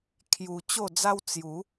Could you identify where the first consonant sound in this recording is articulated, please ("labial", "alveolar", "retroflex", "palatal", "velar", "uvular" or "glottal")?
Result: velar